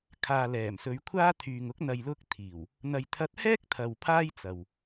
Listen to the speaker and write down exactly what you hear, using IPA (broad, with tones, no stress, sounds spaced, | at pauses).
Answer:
kʰ aː˨ l ɛː˨˩ m s ɵ˨˧ ɥ kʷʰ aː˥ t̪ʰ yː˨ ŋ ʊ˨˥ k̚ n̪ ɐ˨ j l ʊ˧ k̚ t̪ʰ iː˨˩ w | n̪ ɐ˨ j t̪ʰ ɐ˧ t̚ h ɛː˥ k̚ t̪ʰ ɐ˨ w pʰ aː˥ j t͡s ɐ˨ w